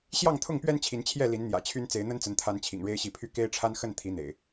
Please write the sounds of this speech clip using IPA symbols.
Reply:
ɕ j ɑ˥˨ ŋ t̪ʰ ʊ˥˨ ŋ p ɥ ɛ˦ n t͡ɕʰ i˨˦ n t͡ɕʰ j ɛ˥˨ l i˨˦ n n̪ j ä̰˨˩ t͡ɕʰ y˦ n t͡s e˨˦ ɪ̯ n̪ ə˦ n t͡s ə˨˦ n t̪ʰ a˨˦ n t͡ɕʰ ḭ˨˩ ŋ ɻ e˦ ɪ̯ ɕ i˨˦ pʰ y˥˨ k e˦ ɪ̯ ʈ͡ʂʰ a˦ n x ə˥˨ n t̪ʰ i˨˦ n̪ ḛ˨˩ ɪ̯

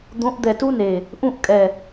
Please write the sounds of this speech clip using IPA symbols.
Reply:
d̪ õ˨˦ ʔ d̪ ɛ˨ t u˦ n e˨ | ʔ ũ˦˨ ʔ kʼ ɛ˨

